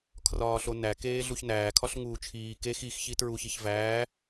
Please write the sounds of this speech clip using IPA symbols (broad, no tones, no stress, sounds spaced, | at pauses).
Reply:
kʰ r ɒː ɬ o n æ k eː ɮ u ç n æː kʰ ɒ ɬ ŋ uː t͡ʃʰ iː k e x i x ç i t ɹ u ç i ç v æː